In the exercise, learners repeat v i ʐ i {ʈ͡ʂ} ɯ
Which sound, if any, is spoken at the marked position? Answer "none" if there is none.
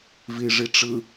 ʈ͡ʂ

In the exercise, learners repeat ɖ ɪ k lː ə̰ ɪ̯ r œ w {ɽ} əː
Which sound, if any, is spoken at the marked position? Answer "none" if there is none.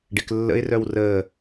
r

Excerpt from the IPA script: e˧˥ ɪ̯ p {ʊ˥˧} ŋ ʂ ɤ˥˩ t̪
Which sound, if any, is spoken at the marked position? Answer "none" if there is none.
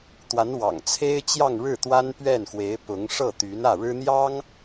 ʊ˧˥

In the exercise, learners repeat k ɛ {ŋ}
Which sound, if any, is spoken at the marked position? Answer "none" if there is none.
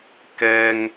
ŋ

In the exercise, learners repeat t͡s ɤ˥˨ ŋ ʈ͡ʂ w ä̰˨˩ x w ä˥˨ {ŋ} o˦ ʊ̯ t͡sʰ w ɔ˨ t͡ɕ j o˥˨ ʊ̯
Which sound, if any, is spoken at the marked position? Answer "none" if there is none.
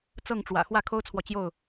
kʰ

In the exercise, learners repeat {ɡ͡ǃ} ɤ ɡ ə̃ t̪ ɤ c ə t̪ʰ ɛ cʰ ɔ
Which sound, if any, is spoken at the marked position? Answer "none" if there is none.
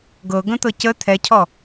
ɡ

